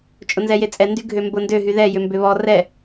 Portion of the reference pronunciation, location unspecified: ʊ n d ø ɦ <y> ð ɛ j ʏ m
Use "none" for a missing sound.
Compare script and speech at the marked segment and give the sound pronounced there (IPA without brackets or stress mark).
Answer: y